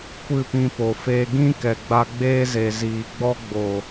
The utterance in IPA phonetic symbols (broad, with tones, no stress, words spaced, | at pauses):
kʷɨ˦˨pĩ˧po˨ feː˧ɡĩ˦ kɛ˨ɡ͡ba˧ɡ͡beː˦ze˨ ziː˨ ɡ͡bɔ˦ɡ͡boː˨